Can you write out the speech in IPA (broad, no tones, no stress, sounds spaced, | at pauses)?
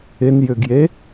ɪ n j ʏ ɡ j e